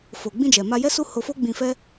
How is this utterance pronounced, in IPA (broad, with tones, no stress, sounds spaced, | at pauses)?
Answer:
f o˨ ɡ͡b ĩ˧ d͡ʒ ɛ˨ m a˧ j ɛ˦ s u˦ h o˧ f o˦ ɡ͡b ĩ˧ f ɛ˦